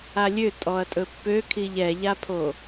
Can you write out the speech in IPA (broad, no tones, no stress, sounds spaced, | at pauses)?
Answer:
a lʲ ø tʼ ɔ ɐ̯ tʼ ɵ pː ø kʰ i ʎ ɛ ʎ a pʰ o